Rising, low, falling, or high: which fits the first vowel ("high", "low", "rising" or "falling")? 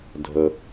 low